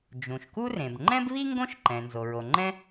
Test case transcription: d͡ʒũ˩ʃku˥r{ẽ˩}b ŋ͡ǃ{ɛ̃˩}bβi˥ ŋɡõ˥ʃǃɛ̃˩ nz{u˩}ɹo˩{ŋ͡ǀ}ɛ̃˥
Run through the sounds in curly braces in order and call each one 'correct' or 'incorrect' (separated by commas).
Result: correct, incorrect, incorrect, incorrect